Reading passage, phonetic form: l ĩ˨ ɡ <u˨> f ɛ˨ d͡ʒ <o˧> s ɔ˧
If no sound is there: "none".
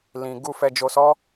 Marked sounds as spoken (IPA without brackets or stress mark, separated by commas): u˨, o˨